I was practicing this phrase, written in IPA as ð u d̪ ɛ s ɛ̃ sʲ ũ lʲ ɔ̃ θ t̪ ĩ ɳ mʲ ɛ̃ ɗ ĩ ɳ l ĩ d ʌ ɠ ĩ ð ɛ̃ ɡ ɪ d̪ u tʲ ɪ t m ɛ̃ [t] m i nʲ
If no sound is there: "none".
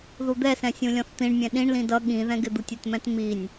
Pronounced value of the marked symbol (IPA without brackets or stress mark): t